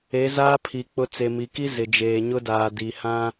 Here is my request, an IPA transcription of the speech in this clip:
e˨˦ z aː˦ pʰ i˨ k͡p ʊ˦ t͡s e˨ m i˨ k i˦ z ɪ˨ d͡ʒ eː˨ ɲ ʊ˦ d aː˨ d i˨ h ã˦

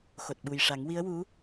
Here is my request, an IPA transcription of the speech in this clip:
x o˨˩ t̚ ɓ u˨˩ j ʂ a˨˩˦ ŋ w i˧˥ ə̯ w u˧˥

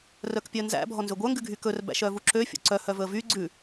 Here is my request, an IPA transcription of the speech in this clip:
r œ k pʲ œ n z æ̰ bʱ ɔ n z ø ɡʷ œ ŋ ɡ ʉ ɡʱ y k ɵ r b æ̰ ʃ œ v u ǁ ø fʲ o̰ ǀ œ h œ v ɵ ə̯ v y ɡ͡ǀ ʉ

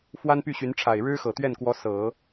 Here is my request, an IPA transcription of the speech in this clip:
f w a˥ n p y˥˩ ɕ y˧˥ n ʈ͡ʂʰ a˨˩ ɪ̯ ɻ ɻ̩˥ x ɤ˨˩ t̪ ɥ ɛ˥˩ n k w ɔ˧˥ s ɤ˨˩˦

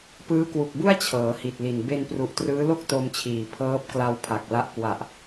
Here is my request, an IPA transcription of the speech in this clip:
p ɯː˦˥ k w u˨˩ k̚ b u˥˩ a̯ t͡ɕʰ ɤː˩˦ h i˨˩ t̚ l i˨˩ n b e˧ n p r u˨˩ ʔ t r ɯː˦˥ l o˥˩ k̚ t o˧ m t͡ɕʰ iː˨˩ pʰ ɤː˦˥ p̚ k l a˧ w pʰ a˨˩ k̚ l a˦˥ ʔ k w a˨˩ ʔ

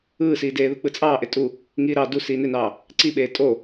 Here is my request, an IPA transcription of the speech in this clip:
ɯː s iː d eː ð ɯ k͡p ɯ t͡sʼ ɑː ʔ e tʼ u | ŋ iː ɾ ɑ d u s iː n e n ɑː | ǀ i ɓ eː tʼ o

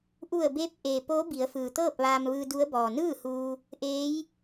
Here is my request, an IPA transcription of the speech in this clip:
ʔ u˧˩ ə̯ b eː˧ p̚ ʔ eː˩ p oː˧˥ b i˩˧ ə̯ f ɯː˩ t̪ ɤː˥˨ p̚ ʋ aː˧ m ʋ ɯː˧ d u˧˥ ə̯ b ɔː˩ n ɯː˥˨ h uː˧ | ʔ eː˧˥ j

